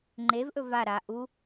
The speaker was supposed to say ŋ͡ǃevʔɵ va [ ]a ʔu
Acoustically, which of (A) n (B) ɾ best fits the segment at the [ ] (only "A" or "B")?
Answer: B